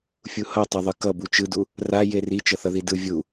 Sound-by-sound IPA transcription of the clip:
fʲuhʌtˤɛðˤɯ kʌ but͡ʃɯdu | ra jeri t͡ʃʌθʌðidɯ vʲu

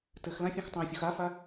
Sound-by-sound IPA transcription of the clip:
tɘxlã fʲõxtˤẽfʲox afa

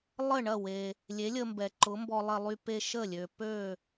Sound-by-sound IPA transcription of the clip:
lˠə˥˩ɳɐ˥˩ we˩ | lʲe˩˥lʲə˧mbɛ˩ ǃʊ˩˥mbɔ˧lˠɐ˧lˠy˧ pe˧ ʃə˥˩lʲø˩ pø˥˩

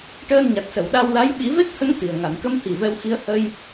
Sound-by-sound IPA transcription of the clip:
ʈəː˧nɲa˨˩t̚sə˨˩˨w ɗa˧wla˧˥j ɓi˨˩˦ve˦˥k̚hə˧˥ŋ t̪i˨˩ə̯ ŋa˨˩˨nkə˧˥mhi˨˩ vɛ˧wxi˧˥ə̯ hə˧j

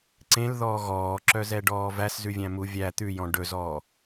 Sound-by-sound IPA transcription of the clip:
ǀẽlðɔː ɣɔːǁœzɛɖɔː væszʉvʲæ̃mu vʲæ t̪ʉjɔ̃ ɖɵzɔː

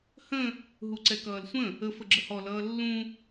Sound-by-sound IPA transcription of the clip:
hə̃ | ɦuǀɛkʌːlsʷə̃ | ə fəɡ͡ǁəhɔ lʌːlːũ

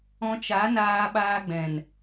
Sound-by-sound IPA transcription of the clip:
ɔ̃˧t͡ʃa˨˦naː˧ ɓaː˧ɡ͡bɛ̃˨n

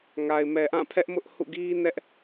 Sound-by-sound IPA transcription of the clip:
ŋa˨ɪ̯mɛ˨ʔã˦˨pʰɛ˦ʔ mʊ˦ʔhṵ˦˨ɡi˦ nɛ˦ʔ

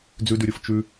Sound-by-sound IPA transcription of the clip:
d͡zʉdʉɾʲof t͡ʃʉ

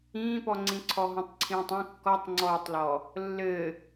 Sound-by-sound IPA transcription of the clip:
ĩːpɔŋ͡ǀĩ ǀʰɔɦũtˤǀʰĩːtˤĩ kːɔtˤŋ͡ǀɔːtˤlɔ | lːɘ

